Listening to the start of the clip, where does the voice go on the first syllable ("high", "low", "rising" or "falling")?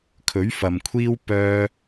rising